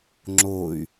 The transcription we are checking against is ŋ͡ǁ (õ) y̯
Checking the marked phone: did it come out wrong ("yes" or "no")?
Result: yes